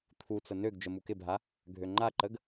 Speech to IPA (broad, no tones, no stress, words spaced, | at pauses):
t̪ʰut͡sə nøɡ d͡ʒəmukɪbʱa | ɡʱøŋ͡ǃaǃəɡ